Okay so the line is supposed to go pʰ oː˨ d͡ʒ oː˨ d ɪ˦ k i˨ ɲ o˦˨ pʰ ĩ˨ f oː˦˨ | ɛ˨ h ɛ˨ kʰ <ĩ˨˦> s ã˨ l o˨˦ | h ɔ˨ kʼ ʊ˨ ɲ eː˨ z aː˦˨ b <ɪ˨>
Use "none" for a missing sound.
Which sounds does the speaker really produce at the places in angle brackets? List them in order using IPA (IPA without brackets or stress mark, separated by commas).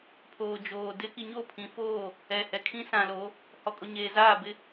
ĩ˦, ɪ˦